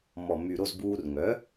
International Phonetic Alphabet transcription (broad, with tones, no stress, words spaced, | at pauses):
mɔ˩my˩ɾo˥˩z buː˧rŋœ˩˥